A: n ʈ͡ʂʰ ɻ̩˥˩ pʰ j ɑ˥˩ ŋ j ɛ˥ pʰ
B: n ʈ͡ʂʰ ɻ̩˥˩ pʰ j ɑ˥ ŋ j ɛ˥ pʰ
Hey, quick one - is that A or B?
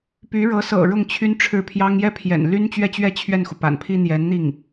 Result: B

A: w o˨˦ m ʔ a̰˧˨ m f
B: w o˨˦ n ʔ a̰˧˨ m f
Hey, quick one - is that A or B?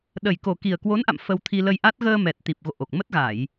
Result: B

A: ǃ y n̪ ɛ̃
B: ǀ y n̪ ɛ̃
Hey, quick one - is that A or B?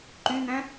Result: A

